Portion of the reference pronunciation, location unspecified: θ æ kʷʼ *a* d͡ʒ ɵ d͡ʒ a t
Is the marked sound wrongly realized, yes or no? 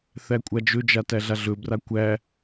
no